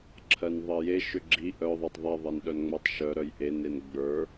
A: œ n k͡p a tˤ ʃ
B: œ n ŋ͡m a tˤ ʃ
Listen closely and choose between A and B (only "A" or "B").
B